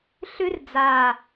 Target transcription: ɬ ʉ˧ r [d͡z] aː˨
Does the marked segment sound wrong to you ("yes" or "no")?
no